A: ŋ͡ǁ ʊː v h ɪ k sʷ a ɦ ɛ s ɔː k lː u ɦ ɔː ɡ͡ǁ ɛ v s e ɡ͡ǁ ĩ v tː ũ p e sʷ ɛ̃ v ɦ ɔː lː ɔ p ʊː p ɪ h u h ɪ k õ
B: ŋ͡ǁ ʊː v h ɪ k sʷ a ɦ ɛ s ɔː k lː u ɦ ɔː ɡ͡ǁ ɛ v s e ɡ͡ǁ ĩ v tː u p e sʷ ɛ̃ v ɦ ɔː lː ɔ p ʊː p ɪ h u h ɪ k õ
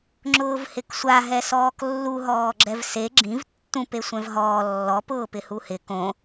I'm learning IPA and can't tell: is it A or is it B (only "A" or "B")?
A